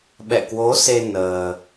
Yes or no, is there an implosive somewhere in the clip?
yes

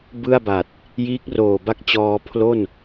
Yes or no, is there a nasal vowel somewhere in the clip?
no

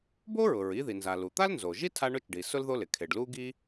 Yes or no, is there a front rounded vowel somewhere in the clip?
no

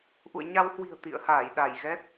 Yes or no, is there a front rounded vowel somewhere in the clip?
no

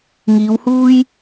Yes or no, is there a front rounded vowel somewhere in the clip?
no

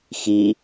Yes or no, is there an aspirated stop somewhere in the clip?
no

